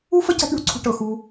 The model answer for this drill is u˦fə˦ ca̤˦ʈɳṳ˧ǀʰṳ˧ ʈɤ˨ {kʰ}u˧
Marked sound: incorrect: x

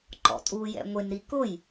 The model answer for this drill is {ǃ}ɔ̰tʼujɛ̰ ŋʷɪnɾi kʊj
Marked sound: correct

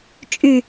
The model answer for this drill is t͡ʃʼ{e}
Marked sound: incorrect: y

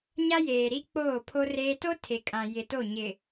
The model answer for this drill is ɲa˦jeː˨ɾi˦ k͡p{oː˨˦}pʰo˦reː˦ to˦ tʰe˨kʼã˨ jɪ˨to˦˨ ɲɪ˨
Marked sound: incorrect: oː˦˨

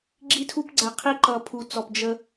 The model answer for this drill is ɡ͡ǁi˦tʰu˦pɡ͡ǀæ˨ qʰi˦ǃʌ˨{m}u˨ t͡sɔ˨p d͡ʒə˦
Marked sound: incorrect: pʰ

